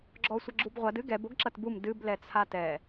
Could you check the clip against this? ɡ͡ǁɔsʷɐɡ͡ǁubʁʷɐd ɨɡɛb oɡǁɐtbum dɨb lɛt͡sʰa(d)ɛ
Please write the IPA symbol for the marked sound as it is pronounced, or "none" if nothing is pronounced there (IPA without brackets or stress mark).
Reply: t